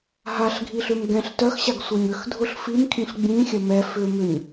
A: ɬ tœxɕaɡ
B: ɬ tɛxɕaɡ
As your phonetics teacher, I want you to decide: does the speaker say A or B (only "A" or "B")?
A